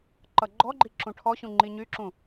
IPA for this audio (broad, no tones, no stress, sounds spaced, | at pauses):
ǃ ʌ ɡ͡ǃ ɔ ɡ͡ǃ i ǁ ũ ʈʰ ɔ ɕ ũ ŋ͡ǃ i ɲ y ǁ ũ